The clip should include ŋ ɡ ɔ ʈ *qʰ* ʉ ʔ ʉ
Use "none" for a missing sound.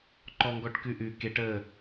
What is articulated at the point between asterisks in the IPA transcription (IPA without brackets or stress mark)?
k